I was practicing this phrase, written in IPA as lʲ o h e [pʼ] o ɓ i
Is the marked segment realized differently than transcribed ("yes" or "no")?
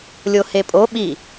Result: no